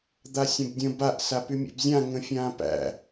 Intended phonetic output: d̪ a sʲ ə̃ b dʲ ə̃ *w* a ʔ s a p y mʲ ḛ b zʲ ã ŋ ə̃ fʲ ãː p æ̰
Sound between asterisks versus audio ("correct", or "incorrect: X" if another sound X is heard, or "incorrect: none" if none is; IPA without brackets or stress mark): incorrect: b